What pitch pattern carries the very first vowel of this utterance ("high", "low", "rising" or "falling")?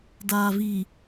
low